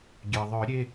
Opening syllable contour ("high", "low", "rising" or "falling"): low